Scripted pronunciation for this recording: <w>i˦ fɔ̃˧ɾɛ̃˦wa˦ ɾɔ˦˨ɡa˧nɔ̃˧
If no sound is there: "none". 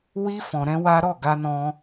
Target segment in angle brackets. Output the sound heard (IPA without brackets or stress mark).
w